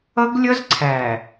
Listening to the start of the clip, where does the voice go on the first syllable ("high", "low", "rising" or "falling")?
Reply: high